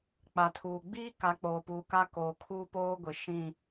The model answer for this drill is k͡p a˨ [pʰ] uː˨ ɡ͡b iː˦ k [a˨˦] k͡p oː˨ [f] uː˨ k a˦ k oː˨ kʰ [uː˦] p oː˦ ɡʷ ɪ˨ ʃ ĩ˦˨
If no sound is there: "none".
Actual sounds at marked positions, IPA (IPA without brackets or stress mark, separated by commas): tʰ, a˨˦, p, uː˦